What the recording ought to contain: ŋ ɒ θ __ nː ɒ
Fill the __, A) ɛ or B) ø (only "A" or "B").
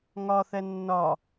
A